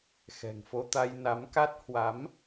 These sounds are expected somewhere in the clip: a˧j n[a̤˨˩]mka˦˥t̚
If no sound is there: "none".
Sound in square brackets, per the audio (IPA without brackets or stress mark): a˨˦